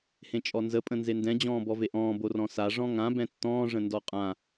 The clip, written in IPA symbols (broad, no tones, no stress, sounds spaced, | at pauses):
h ẽ t͡ʃʼ ɔ n z ə pʼ ə̃ n z e n d ɛ̃ d͡ʑ ɔ̃ː b ɔ v e ʔ ɔ̃ː b o r ɔ̃ s a ʐ ɔ̃ ŋ ã b ɛ̃ tː ɔ̃ː ʐ ə̃ n d ɔ qʼ ã